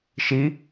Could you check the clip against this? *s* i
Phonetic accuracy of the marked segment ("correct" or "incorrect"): incorrect